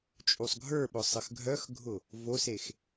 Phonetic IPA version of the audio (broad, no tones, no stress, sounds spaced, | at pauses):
t͡ʃʼ u sˤ ɡʱ ə˞ ɓ ʊ sˤ ə x ɡʱ œ x ɡʱ ʊ | v o s e x